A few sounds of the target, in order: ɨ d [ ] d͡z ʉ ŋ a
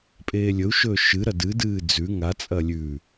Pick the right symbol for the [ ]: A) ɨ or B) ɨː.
B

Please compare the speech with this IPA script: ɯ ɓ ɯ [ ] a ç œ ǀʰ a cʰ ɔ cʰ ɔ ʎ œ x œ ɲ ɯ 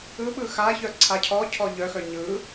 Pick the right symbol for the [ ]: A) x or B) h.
A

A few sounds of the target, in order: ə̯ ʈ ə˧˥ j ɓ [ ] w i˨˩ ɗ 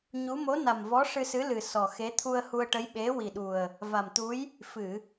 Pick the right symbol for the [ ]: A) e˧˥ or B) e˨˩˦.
A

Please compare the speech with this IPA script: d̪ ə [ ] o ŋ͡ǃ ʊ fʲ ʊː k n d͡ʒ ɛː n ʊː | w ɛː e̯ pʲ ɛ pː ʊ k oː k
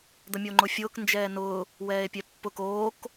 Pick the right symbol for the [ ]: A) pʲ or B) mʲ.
B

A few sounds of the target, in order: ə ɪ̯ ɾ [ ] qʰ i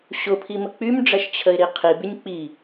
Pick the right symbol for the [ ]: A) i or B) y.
A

